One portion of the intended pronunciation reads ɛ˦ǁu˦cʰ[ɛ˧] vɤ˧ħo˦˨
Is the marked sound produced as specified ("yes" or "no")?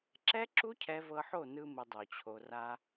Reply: yes